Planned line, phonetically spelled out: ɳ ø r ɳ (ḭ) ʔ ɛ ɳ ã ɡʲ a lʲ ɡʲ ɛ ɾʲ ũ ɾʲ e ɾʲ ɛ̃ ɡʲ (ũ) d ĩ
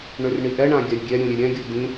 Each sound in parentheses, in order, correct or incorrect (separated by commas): incorrect, incorrect